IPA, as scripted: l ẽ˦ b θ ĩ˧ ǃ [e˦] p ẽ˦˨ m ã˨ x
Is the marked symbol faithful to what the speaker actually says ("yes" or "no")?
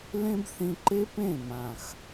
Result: yes